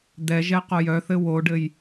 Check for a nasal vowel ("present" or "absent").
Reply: absent